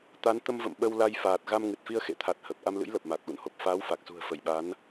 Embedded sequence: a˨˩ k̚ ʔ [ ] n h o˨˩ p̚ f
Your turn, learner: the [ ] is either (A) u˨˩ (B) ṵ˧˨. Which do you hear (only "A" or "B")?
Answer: B